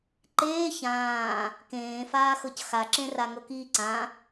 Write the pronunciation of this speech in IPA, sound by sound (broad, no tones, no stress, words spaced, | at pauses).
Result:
ǃeː çãː | kẽːfaːxɤc xaǁẽra ŋɤkiːǀã